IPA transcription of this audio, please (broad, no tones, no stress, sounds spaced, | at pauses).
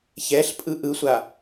ç ɛ ɬ pʼ ɯ ʔ ɯ sʷ a